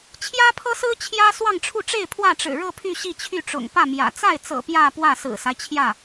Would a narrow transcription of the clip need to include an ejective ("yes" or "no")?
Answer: no